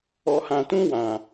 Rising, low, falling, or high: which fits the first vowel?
low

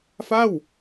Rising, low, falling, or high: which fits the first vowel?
falling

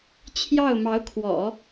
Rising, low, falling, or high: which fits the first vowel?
falling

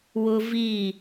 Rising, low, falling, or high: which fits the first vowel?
high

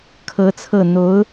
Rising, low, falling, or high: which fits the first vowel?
rising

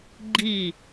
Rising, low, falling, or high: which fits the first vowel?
falling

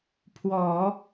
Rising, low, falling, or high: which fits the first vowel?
low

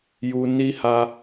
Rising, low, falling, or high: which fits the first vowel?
low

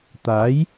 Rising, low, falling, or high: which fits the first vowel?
rising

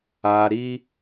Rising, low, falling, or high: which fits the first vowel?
low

